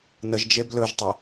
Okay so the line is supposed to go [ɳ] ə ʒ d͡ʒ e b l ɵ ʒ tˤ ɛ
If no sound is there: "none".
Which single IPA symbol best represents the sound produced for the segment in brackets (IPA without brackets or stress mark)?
n